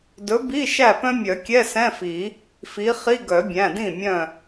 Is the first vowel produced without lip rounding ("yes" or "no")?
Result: no